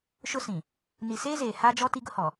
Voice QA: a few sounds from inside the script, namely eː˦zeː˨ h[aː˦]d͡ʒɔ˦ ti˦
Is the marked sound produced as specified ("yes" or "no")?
yes